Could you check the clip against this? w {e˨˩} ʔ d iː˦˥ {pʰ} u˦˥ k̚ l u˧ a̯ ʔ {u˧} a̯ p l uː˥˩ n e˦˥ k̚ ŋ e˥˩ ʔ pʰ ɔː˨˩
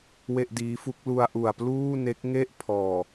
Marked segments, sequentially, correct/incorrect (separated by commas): incorrect, incorrect, incorrect